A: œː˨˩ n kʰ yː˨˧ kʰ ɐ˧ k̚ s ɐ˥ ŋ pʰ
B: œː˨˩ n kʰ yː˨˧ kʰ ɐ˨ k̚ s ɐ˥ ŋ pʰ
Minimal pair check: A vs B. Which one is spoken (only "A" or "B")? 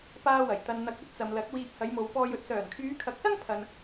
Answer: B